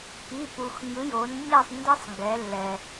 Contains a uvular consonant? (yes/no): no